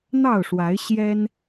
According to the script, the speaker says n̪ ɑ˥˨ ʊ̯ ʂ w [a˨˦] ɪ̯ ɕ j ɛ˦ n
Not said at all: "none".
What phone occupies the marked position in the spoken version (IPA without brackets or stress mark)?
a˨˦